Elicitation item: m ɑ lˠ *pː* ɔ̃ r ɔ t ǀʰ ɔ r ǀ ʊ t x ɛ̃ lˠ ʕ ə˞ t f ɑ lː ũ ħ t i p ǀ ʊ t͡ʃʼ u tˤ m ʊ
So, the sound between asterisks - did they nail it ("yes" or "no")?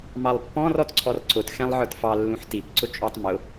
yes